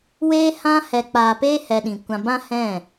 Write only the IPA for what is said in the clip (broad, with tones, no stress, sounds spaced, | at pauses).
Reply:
w eː˧ h ã˧ h ɛ˨ k͡p aː˨ p eː˦ h ɛ˧ ɗ ĩ˨ kʷ ã˧ b ã˦ h ɛ̃˦˨